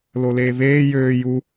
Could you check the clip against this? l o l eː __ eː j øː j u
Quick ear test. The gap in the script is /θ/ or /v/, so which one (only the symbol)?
v